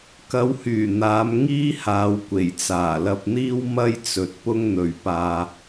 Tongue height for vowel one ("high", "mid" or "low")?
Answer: low